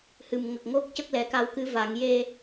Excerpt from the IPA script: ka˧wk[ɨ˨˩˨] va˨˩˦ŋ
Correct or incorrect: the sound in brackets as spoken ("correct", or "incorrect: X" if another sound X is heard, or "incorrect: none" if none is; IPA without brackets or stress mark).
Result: incorrect: ɨ˧˥